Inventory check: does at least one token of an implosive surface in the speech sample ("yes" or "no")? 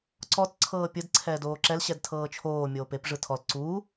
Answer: no